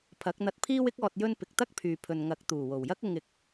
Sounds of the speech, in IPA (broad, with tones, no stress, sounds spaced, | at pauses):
pʰ ɐ˨˥ k̚ n̪ ɐ˧ t̚ pʰ iː˥ w ɪ˥ k̚ ɔː˨ t̚ j ɵ˧ n p ɪ˨ k̚ t̪ ɐ˥ k̚ pʰ yː˨ pʰ ɵ˨ n ŋ ɐ˨˥ k̚ t̪ uː˨˩ w o˨˩ w j ɐ˥ k̚ ʊ˧ ŋ ɪ˨˥ k̚